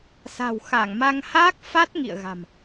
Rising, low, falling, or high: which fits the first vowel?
low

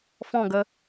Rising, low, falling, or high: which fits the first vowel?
falling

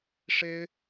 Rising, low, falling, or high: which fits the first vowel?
high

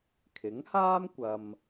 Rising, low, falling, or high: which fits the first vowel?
rising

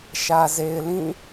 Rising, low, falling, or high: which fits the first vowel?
low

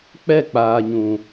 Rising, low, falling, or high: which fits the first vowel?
falling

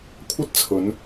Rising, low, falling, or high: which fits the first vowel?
high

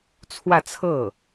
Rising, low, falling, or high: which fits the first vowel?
falling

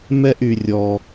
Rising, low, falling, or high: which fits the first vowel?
high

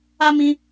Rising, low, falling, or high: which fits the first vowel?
high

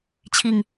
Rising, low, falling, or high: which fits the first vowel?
low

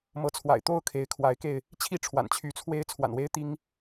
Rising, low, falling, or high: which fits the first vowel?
rising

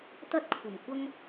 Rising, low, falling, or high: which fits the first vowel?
high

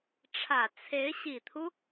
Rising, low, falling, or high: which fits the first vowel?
low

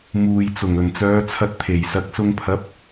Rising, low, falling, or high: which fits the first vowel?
low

